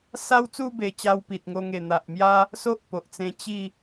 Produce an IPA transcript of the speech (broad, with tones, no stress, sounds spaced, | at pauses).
s a˥˧ w t͡s u˥˧ b e˨˩ t͡ɕ a˧ w p i˨ t̚ ŋ o˧ ŋ e˨˩ n̪ a˨ ʔ m j a˦ | s o˦ ʔ p o˨ ʔ t͡s ẽ˧ t͡ɕ i˥˧